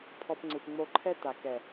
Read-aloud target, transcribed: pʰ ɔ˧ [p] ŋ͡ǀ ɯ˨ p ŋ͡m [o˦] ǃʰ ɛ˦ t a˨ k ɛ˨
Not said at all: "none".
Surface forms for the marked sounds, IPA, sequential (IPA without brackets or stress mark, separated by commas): p, o˧